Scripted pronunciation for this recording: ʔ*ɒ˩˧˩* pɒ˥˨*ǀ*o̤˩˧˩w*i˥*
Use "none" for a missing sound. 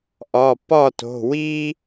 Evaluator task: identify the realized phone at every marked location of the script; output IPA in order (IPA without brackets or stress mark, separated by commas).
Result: ɒ˩˧˩, t, i˥